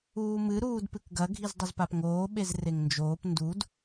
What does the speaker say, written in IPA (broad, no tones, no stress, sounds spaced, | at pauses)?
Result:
uː m ɨ ɾ uː d p ɨ k ɡ ɐ ɡʱ i z dˤ ɘ z p a p ŋ oː ɓ e z r e ŋ n d͡ʒ oː p n d u d